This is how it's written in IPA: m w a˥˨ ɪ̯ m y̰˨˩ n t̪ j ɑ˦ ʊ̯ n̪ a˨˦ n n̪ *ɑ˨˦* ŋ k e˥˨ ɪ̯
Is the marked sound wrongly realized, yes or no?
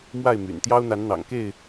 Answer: yes